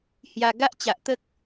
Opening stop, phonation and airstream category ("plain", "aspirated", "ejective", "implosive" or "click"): plain